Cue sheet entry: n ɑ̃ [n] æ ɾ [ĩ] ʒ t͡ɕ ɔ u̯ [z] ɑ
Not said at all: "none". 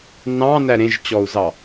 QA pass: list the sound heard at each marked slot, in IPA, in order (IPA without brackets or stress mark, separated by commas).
n, ẽ, z